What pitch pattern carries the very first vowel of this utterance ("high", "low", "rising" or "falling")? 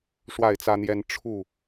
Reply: falling